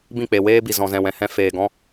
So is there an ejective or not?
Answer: no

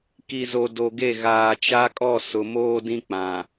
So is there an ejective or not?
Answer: yes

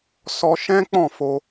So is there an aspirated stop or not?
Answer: no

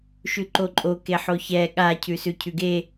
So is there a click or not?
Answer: yes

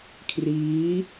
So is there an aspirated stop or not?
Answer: yes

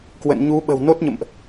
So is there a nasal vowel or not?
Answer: no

